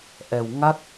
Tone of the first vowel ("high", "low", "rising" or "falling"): low